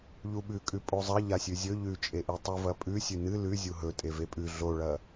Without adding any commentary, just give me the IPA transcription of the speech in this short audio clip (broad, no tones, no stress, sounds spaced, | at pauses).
ʎ u ɓ ʉ kʼ ʉ pʼ o zˤ ɐ ʎ a sʲ ʉ zʲ ɵ ʎ ʉ t͡ʃʼ e ʔ i tˤ u v ɐ pʼ ʉ sʲ ʉ n ɨ l ʉ zʲ u ɦ ɵ tʼ e v e pʼ ʉ ɮ o ɭ ɐ